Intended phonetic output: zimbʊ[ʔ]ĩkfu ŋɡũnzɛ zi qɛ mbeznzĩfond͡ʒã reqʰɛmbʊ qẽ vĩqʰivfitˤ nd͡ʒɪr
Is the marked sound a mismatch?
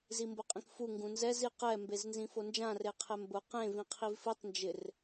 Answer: yes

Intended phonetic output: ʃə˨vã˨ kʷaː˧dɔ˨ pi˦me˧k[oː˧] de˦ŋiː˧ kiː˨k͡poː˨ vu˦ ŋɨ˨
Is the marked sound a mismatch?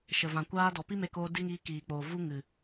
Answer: no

